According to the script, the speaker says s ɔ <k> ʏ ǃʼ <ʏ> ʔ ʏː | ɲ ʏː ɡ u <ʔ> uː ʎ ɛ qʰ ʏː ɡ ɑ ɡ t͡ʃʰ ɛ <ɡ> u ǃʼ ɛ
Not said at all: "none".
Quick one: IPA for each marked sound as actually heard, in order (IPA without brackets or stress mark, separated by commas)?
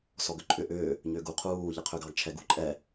ɡ, ʏ, qʰ, ɡ